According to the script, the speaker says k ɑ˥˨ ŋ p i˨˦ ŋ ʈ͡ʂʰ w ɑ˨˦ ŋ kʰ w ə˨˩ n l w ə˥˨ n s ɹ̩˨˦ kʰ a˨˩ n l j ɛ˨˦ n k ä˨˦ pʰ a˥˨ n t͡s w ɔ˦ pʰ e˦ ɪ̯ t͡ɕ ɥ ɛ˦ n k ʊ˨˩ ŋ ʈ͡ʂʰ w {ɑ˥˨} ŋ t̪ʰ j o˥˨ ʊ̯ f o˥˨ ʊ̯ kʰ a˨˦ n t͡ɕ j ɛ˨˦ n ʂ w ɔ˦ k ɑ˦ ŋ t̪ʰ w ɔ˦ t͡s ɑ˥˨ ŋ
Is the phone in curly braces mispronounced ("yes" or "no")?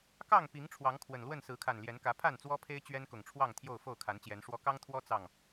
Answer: no